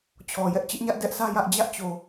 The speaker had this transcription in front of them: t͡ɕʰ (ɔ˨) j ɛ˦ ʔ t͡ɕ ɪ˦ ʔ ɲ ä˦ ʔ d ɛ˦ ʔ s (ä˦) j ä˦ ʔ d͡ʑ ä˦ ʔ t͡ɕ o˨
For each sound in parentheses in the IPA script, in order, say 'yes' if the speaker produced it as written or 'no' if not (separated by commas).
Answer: yes, yes